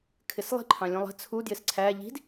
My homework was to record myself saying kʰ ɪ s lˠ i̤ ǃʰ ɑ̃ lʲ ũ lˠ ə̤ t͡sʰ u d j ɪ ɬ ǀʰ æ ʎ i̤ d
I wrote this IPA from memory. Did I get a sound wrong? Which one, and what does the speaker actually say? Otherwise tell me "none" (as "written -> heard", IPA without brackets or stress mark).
ɬ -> s